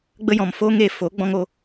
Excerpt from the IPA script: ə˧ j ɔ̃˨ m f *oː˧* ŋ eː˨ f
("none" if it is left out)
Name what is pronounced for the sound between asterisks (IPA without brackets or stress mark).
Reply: oː˧